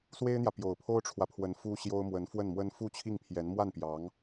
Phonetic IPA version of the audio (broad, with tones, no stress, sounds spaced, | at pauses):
s w e˥ ɪ̯ n̪ j ä˨ p j o˨˩ ʊ̯ pʰ o˥ ʊ̯ ʈ͡ʂʰ w ä˨ pʰ w ə˧˥ n f u˥ ɕ j o˥ ʊ̯ m w ə˧˥ n f w ə˥˩ n m w ə˥ n f u˥˧ t͡ɕʰ i˥˩ ŋ pʰ j ɛ˧˥ n m w a˥˩ n p j ɑ˧˥ ŋ